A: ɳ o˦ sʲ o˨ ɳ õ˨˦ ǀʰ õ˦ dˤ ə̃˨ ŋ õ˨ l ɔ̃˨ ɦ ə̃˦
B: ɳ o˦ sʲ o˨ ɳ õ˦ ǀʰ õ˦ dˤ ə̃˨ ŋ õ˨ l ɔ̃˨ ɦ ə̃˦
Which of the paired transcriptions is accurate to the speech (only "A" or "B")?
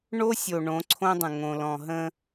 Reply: A